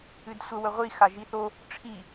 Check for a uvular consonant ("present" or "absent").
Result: present